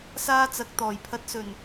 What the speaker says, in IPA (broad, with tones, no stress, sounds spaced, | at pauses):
s aː˧ t͡s ɐ˨ k̚ t̪ ɔː˨˩ j pʰ ɐ˨˥ t̚ s ɵ˨˩ n